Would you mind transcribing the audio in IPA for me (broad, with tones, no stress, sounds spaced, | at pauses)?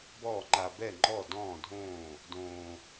b ɔː˥˨ ŋ͡ǃ a˧ b ɛ˥˨ ŋ͡ǃ ɔ˥˨ d ɔ̃ː˥˨ dʱ õː˥˨ | d õː˧